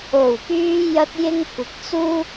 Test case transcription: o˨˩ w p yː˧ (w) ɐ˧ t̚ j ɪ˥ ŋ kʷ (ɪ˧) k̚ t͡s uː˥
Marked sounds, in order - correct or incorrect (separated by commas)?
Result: incorrect, correct